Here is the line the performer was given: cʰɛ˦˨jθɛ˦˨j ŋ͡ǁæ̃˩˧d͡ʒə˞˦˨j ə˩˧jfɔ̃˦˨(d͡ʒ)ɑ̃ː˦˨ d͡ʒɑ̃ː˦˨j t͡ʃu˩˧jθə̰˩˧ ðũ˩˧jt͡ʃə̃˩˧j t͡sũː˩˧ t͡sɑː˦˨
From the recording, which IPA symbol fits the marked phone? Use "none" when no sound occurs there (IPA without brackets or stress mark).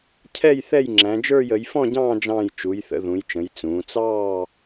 ɟ